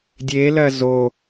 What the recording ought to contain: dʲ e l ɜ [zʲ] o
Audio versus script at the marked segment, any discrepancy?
yes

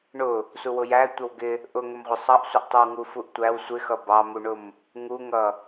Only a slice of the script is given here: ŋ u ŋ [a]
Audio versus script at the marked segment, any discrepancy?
yes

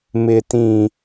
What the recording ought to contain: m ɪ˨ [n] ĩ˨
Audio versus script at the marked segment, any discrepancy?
yes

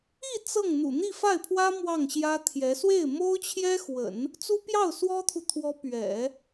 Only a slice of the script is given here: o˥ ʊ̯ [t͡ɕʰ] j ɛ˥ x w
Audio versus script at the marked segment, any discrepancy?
no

